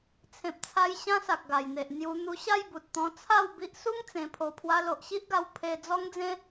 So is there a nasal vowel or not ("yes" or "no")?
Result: yes